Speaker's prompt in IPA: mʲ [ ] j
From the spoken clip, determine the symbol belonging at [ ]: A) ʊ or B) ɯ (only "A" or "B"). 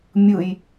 B